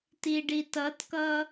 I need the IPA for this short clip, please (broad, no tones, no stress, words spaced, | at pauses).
tiɖitʌtkʌ